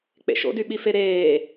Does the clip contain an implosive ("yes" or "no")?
yes